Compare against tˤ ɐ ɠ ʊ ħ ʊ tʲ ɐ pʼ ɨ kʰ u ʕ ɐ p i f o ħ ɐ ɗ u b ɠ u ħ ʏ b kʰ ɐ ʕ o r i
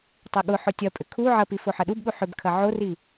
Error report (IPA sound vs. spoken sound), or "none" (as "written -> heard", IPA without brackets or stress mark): ɨ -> ʏ